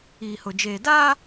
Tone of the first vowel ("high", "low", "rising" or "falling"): low